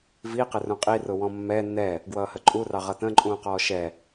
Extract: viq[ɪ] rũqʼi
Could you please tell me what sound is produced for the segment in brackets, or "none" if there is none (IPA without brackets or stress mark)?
ɪ